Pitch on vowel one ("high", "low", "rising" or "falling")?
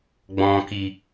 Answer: low